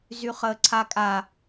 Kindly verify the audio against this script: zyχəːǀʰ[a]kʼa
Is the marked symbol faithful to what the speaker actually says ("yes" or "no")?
yes